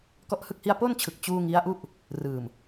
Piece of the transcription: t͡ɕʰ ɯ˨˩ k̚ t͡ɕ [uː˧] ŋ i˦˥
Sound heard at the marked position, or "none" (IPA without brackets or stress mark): uː˧